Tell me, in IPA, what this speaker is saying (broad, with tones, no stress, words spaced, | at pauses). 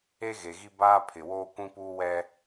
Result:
e˦ɣe˨ɣi˦ baː˦pʰɪ˨woː˦ kʷĩ˦puː˦wɛ˦